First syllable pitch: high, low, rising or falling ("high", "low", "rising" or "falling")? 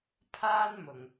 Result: high